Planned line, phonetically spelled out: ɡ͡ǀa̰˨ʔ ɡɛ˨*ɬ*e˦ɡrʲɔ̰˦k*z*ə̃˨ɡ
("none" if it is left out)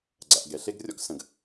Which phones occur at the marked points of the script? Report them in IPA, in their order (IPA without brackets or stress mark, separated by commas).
ɬ, s